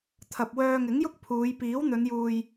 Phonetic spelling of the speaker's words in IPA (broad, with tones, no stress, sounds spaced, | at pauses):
t̪ʰ ɐ˨ p̚ w œː˧ ŋ ɪ˨˥ ŋ j ʊ˥ k̚ pʰ uː˨˧ j p iː˨˥ w n̪ ɵ˨˧ n j uː˨ j